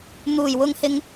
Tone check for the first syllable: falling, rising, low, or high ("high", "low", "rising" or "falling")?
low